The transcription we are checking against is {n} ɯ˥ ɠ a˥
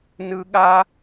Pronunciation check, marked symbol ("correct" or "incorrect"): correct